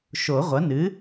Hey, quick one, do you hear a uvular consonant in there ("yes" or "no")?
yes